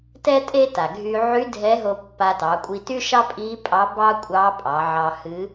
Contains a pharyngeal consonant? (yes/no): yes